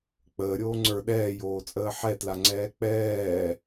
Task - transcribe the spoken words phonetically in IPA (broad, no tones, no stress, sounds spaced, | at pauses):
k͡p əː ɾʲ oː ŋ͡ǀ ə˞ ɗ ɛː j oː t͡sʼ əː ħ ɛ t l a ŋ͡ǀ ɛː k͡p ɛː